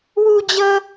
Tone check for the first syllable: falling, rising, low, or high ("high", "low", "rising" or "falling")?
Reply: high